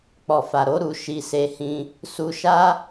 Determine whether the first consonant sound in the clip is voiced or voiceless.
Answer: voiceless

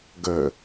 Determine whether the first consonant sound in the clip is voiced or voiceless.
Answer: voiced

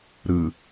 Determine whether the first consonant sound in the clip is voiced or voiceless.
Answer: voiced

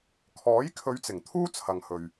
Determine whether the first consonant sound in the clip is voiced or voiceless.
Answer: voiceless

